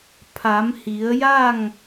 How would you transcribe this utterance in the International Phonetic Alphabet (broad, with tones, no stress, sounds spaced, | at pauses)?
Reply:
pʰ a˩˧ m h i˩˧ ə̯ j a˥˨ ŋ